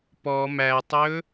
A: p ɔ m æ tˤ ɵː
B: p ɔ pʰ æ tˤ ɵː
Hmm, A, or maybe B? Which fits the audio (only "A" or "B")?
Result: A